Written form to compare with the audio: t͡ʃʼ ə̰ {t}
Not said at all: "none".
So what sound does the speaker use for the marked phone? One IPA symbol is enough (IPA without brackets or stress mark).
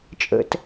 t